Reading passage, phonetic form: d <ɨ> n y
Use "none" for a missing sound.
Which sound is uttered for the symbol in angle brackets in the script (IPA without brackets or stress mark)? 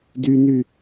y